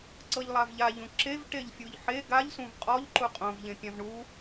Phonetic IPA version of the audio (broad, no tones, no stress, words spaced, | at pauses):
ǀɤʎlˠavʎaʎũ ǁev ʈeʎfʲuʎħe ɡaʎsũv qʼɔʎ ǃuqʼõv ʎẽpʲãvɳu